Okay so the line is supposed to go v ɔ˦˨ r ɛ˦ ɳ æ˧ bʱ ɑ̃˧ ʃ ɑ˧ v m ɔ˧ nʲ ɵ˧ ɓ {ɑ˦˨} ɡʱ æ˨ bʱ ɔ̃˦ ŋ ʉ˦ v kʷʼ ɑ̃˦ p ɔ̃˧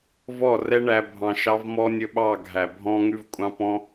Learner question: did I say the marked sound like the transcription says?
yes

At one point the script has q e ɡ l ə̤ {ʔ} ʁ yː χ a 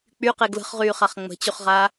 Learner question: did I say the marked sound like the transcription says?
no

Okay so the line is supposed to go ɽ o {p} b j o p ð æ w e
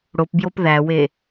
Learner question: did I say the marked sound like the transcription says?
yes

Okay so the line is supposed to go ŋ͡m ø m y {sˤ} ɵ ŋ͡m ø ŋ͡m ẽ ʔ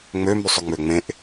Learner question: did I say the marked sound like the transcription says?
yes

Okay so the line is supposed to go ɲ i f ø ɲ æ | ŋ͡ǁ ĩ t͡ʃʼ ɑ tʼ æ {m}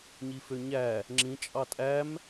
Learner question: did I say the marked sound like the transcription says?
yes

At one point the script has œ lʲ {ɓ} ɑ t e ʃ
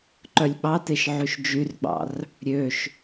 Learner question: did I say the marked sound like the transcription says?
yes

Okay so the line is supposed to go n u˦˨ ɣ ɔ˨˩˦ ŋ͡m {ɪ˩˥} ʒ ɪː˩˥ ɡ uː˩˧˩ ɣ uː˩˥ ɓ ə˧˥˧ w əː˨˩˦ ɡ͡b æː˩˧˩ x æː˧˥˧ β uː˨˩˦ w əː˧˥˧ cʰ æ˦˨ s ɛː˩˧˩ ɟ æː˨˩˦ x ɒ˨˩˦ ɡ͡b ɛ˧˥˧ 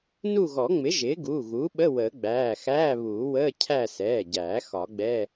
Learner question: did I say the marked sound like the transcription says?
yes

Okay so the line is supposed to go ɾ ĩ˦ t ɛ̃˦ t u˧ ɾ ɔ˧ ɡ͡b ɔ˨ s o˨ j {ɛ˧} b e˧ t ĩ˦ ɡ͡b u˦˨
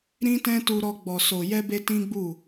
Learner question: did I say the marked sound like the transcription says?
yes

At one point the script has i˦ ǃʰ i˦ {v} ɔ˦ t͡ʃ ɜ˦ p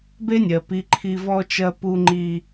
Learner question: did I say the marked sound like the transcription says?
yes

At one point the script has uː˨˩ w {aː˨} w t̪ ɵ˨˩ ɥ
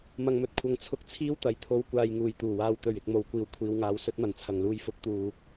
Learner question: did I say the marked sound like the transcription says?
yes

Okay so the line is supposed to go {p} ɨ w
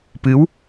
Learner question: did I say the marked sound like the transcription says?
yes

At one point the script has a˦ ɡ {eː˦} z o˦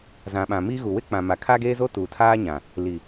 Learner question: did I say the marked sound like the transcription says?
yes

